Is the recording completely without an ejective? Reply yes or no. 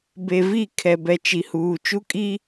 no